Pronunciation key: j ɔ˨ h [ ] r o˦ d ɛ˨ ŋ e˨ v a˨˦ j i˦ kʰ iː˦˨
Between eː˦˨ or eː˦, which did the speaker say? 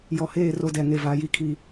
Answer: eː˦˨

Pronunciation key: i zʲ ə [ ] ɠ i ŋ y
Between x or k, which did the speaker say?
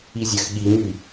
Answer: x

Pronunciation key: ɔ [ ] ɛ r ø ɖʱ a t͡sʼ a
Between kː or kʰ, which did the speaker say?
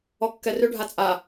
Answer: kː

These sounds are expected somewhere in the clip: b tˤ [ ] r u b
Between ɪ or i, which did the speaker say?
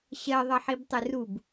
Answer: ɪ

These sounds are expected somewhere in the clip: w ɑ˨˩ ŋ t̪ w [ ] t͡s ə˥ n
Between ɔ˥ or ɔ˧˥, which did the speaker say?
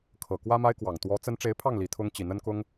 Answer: ɔ˧˥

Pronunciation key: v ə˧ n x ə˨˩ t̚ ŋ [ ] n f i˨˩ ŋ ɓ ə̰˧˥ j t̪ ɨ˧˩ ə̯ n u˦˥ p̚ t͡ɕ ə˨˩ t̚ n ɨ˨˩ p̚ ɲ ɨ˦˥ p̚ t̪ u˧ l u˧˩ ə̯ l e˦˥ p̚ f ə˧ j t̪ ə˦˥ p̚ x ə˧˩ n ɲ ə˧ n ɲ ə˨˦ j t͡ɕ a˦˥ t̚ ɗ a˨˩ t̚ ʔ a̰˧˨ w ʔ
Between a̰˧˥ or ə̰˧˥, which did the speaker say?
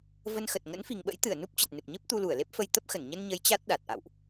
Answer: ə̰˧˥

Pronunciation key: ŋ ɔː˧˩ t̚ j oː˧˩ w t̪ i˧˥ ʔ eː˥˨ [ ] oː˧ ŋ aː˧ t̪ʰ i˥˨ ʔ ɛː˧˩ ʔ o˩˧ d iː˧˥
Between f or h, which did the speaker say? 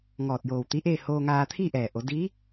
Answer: h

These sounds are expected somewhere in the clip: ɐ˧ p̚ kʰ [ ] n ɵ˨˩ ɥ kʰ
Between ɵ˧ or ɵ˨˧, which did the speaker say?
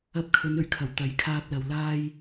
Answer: ɵ˨˧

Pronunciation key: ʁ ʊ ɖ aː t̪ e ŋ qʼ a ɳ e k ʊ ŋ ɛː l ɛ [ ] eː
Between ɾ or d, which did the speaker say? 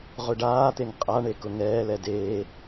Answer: d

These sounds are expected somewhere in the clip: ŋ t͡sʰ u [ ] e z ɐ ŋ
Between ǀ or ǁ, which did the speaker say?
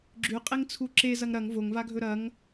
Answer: ǁ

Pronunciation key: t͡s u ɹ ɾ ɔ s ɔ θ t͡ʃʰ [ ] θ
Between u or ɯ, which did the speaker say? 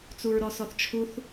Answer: u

